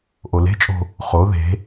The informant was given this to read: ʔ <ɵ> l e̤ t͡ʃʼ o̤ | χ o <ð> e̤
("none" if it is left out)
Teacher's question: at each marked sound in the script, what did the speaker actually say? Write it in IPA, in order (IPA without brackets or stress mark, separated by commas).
o, ð